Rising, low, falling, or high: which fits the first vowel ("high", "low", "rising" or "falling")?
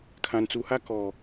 low